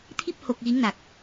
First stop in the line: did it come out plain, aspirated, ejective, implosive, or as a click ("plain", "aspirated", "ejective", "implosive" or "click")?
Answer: aspirated